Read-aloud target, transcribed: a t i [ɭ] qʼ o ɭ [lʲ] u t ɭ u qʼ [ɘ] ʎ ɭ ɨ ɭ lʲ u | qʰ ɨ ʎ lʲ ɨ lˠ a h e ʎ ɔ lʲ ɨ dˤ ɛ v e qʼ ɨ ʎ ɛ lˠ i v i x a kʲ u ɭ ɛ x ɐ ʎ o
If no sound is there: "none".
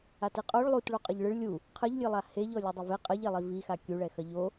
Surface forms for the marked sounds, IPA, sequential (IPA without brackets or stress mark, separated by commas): none, lˠ, ɘ